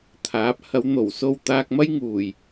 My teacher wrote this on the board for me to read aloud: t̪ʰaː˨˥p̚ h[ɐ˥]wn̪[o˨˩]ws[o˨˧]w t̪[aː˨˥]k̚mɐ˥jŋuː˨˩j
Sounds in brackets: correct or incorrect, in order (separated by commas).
incorrect, correct, incorrect, incorrect